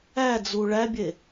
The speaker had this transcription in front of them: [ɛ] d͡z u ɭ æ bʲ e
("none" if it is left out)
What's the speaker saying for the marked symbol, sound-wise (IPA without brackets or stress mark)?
æ